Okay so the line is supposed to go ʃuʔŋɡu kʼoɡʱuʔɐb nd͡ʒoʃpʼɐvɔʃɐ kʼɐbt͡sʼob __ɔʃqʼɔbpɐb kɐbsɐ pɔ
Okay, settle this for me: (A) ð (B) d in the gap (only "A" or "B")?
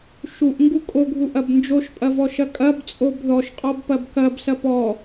A